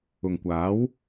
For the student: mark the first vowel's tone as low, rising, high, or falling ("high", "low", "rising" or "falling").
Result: low